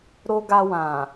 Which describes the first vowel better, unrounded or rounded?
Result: rounded